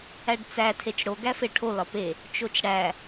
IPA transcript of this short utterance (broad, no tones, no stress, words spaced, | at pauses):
æɖt͡sæ tʰet͡ʃɽo ɡæfeʈʰo lɒpe | t͡ʃot͡ʃɽæ